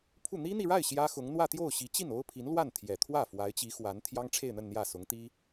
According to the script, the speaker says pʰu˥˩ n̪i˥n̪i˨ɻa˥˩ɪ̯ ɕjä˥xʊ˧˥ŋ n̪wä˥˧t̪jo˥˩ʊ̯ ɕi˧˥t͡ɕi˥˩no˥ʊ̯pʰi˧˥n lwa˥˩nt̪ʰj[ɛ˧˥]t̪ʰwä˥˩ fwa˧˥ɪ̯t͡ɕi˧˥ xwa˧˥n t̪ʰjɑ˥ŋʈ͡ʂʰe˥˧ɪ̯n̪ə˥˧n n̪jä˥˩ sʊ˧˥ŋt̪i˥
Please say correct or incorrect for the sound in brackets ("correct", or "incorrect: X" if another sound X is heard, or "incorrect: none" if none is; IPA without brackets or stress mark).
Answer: incorrect: ɛ˨˩